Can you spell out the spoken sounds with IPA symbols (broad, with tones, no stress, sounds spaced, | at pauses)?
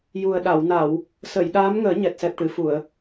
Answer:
j u˨˩ ə̯ ɗ a˨˩˨ w n a˨˩˨ w | s ə˨˩˨ j ɗ aː˧˥ m ŋ əː˨˩˦ ɲ ɛ˨˩ t̚ s ɛ˨˩ p̚ ʈ ɨ˨˩˨ f u˨˩˨ ə̯